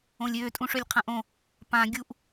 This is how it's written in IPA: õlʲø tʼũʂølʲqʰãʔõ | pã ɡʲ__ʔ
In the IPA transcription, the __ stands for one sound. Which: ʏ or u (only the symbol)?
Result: u